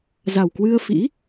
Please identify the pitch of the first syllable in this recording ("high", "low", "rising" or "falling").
low